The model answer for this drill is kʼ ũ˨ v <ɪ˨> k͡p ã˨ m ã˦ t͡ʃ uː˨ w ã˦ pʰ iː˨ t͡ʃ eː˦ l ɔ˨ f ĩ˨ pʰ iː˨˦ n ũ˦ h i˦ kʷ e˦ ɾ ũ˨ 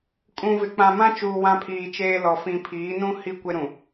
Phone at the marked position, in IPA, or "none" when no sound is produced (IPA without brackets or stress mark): ɪ˨